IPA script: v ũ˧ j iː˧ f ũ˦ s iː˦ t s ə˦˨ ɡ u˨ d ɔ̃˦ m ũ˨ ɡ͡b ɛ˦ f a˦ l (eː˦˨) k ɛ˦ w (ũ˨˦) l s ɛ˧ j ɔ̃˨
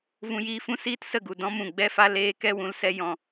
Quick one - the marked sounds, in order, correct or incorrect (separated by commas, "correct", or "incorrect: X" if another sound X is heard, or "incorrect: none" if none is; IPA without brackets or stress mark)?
incorrect: eː˧, correct